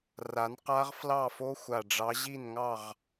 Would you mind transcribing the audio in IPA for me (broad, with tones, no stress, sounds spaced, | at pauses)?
r a˨˦ n q a˦˥ ʁ f l ɑ˥˨ f o˦˥ xʷ a˨˩ ɖ͡ʐ ɑ˨˦ ʑ i˥˨ n ŋ ɑ˥˨ ʁ